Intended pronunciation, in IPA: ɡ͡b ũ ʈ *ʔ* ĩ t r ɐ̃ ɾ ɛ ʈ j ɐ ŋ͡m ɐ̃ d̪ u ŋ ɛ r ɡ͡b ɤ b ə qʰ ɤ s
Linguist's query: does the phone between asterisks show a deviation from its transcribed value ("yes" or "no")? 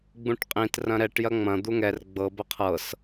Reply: yes